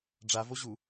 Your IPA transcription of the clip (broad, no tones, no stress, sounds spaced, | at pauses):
ɖ͡ʐ a v o ʑ u